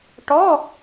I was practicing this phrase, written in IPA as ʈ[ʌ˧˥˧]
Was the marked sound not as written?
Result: yes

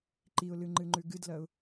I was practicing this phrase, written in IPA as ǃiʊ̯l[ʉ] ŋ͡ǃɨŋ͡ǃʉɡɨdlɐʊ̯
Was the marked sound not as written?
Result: yes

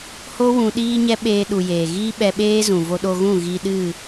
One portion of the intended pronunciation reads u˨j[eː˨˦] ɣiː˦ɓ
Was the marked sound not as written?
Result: yes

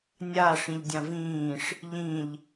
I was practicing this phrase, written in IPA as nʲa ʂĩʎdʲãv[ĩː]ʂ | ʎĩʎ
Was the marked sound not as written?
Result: no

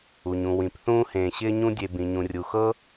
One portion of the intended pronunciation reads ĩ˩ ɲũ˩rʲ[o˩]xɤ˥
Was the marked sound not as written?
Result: yes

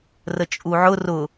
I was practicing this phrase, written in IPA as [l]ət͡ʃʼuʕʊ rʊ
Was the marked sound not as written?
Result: yes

